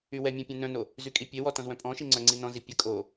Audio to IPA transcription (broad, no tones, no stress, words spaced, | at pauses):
ywɛmʲɛ̃ pʲɛ̃nœ̃no | zykʼipʲewɔ tɔ̃zwœ̃pʼɔ̃ʃi ŋ͡ǀœŋ͡ǀinɔ̃zi pʲə kʼo